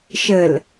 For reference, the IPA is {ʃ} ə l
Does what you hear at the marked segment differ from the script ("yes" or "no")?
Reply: no